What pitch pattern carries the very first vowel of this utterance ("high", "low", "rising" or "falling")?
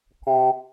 high